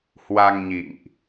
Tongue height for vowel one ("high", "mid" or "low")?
low